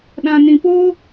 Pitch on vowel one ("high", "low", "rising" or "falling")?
low